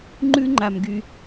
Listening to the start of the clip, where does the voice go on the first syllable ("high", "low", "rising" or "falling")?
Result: high